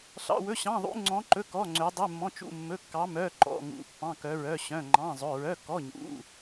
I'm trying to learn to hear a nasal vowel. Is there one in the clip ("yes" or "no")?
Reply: yes